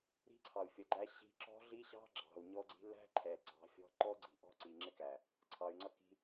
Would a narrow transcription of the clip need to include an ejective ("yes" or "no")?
no